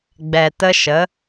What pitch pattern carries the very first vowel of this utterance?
low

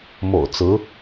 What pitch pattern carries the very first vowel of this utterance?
low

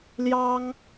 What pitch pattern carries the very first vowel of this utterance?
high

